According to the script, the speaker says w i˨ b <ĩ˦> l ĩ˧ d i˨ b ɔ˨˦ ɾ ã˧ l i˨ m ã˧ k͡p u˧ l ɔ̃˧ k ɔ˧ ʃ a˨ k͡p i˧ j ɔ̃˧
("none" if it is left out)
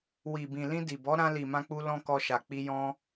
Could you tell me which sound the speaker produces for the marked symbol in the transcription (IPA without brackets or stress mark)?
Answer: ĩ˨